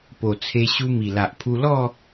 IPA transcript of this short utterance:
p o˨˩ t͡sʰ e˧ ɕ u˧ m i˨˩ l a˨ ʔ pʰ u˧ l ɔ˥˧

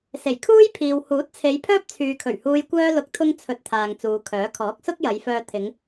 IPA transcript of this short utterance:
s e˨˩ j kʰ uː˥ j pʰ iː˨ w h uː˨˥ t̚ t͡sʰ e˨˧ j pʰ œː˥ p̚ t͡sʰ yː˨ kʰ ɵ˨˩ ɥ h uː˧ j kʷ œː˧ l ʊ˨˥ k̚ t̪ʰ ʊ˧ ŋ t͡sʰ ɵ˧ t̚ t̪ʰ aː˨ ŋ t͡s uː˨˧ kʰ œː˨˥ kʰ ɔː˨˥ k̚ s ʊ˥ k̚ j ɐ˨˧ j f œː˧ t̪ʰ ɪ˨˧ ŋ

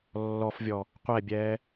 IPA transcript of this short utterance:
lː ɔ f vʲ ɔ | qʷ ɛ bʲ ɛː

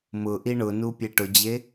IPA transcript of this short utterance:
m ʊ ʔ i ɳ ʊ n u pʲ e ʈ ʊ d͡ʑ e

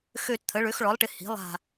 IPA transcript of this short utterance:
x ø˦˨ t t̪ʰ ə˩˥ ɭ ø˩˥ x ɭ ɔ˩˥ lˠ ʈ ɪ˩˥ h i̤˩˥ lˠ a̤˦˨

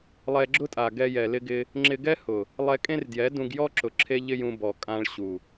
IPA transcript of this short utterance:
lˠ ɛ˧ ɡ͡ǁ ʊ˦ tʼ a˨ ɡ ɛ˧ j ɛ˨ l ɪ˧ ɡ ɪ˧ | ŋ͡ǁ ɪ˧ ɡ ɛ˦ h ʊ˨ | lˠ ɛ˧ kʼ ẽ˦ r d j ɛ˨˦ d ũ˧ ɡ j ɔ˦ ǁ ʊ˨ ǁʰ e˦ ʎ ɪ˦ j ũ˧ b ɔ˨ kʼ ã˧ ɭ ɕ u˨

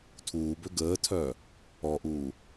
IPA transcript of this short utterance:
tʰ uː b ø ɡ əː tʰ œː | ɔ ʔ uː

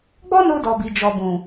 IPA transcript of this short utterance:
ɡ͡b ɔ˦ n o˧ d ɔ˨ b i˨˦ d͡ʒ ɔ˧ b ũ˨

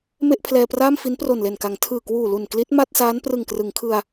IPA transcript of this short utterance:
m e˥˩ ʔ pʰ l ɛː˧ p r aː˥˩ m f i˦˥ n p r o˨˩ n l e˨˩ n k a˩˦ ŋ tʰ ɯː˨˩ k w uː˨˩ l u˨˩ n k l i˦˥ t̚ m a˥˩ t̚ s aː˦˥ n p r ɯ˨˩ ŋ k r ɯ˩˦ ŋ kʰ ɯ˧ a̯

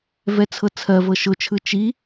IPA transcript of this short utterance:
v ɛ t͡sʰ ɤ t͡sʰ ɜ v ɤ ʃ ʊ t͡ʃʰ ɯ t͡ʃ i

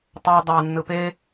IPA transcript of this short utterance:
tˤ a dˤ a nː ɯ p e

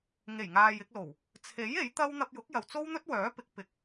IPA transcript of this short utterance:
ŋ e˨˩ j ŋ aː˨ j ɪ˧ k̚ l o˨˩ w | t͡sʰ e˨˥ j e˨˥ j t̪ ɐ˥ w n̪ ɐ˧ p̚ j ʊ˨˥ k̚ j ɐ˨ w t͡s o˥ w n̪ ɵ˥ t̚ w œː˨˥ p ɪ˨˥ k̚ p ɪ˨ k̚

